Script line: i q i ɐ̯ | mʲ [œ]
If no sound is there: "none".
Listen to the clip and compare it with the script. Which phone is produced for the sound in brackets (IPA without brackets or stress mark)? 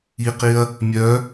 œ